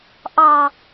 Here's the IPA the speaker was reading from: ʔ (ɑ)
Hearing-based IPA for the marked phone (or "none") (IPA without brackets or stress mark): ɑ